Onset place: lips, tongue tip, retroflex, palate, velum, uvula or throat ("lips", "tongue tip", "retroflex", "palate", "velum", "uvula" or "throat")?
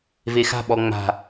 lips